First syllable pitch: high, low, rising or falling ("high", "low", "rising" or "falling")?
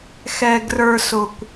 low